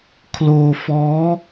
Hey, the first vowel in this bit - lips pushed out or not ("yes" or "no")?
yes